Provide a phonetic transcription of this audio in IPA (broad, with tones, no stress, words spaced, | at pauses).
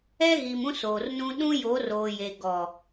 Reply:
ɛ˦ɣi˨m ũ˦soː˨rnũ˦ ɗũ˦jo˨˦roː˨je˨ ɡɔ˨